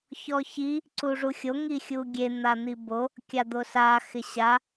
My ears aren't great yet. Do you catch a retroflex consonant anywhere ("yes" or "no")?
yes